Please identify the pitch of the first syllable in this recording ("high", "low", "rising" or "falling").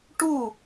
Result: falling